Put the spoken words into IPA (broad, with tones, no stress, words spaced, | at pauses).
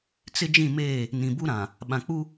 t͡sɪ˦d͡ʒĩ˦˨ meː˦˨ | nĩ˨bu˦ɾã˨ | ɓã˨ k͡pu˦